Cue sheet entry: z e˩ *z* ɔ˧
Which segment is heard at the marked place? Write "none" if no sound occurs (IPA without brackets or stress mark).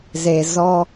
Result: z